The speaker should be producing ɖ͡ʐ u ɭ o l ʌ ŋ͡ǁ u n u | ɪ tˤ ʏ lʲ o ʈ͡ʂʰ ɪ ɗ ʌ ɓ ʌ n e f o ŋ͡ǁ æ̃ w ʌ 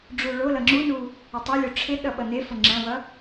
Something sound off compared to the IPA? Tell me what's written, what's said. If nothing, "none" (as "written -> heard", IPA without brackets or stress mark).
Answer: none